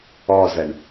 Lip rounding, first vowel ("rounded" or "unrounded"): rounded